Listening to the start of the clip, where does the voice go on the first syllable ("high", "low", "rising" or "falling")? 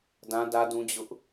high